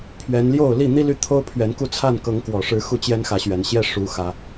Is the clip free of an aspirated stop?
no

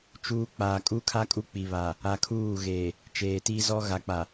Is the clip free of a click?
yes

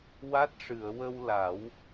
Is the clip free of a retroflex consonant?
no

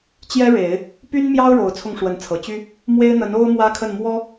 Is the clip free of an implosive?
yes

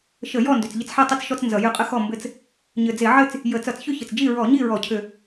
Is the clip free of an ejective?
no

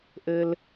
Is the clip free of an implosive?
yes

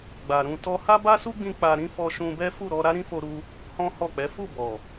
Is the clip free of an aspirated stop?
yes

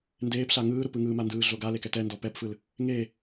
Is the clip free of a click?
yes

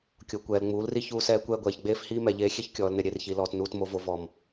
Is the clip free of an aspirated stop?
yes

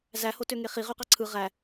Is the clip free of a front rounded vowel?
no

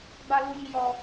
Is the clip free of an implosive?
yes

